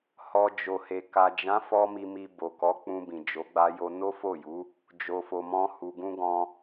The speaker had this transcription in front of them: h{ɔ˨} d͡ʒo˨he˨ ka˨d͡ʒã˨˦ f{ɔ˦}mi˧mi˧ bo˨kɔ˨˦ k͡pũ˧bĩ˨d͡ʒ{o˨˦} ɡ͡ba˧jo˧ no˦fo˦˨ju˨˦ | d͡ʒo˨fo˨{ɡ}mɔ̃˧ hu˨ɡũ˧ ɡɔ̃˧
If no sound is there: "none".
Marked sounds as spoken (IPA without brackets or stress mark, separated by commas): ɔ˨, ɔ˦, o˨˦, none